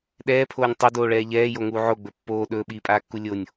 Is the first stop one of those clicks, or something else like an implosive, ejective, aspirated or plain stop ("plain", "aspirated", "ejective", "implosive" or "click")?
implosive